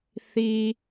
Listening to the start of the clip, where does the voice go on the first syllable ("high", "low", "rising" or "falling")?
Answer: low